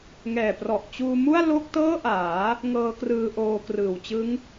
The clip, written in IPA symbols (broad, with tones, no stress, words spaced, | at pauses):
ŋɛː˨˩prɔ˨˩ʔt͡ɕuː˧mu˥˩a̯ lo˥˩k̚tɤː˥˩ʔaː˩˦ | ŋɤː˦˥krɯː˧ʔoː˧ krɯː˨˩wt͡ɕɯ˦˥ŋ